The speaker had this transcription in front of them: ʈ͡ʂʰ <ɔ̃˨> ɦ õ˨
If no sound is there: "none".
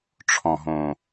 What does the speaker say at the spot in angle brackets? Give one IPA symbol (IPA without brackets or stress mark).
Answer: ɔ̃˨